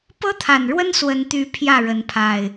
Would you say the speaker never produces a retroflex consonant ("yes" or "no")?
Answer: no